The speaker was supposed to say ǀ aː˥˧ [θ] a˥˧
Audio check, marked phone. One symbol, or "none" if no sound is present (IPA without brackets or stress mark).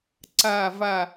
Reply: v